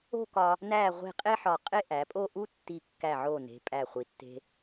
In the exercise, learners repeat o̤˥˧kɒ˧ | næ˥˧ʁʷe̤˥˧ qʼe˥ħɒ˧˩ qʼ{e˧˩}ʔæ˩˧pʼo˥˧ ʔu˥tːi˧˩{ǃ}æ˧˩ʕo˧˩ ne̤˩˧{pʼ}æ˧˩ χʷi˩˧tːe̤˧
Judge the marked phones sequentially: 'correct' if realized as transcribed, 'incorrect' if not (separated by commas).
incorrect, incorrect, correct